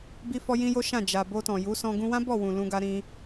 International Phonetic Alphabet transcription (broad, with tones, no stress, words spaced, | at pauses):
bi˦fɔ˦ jĩ˦jo˦ʃã˦˨ d͡ʒa˨ bo˧tɔ̃˨ju˨˦sɔ̃˧ ɡũ˧wã˦bɔ˦˨wũ˨ lũ˧ɡa˧ ɾĩ˧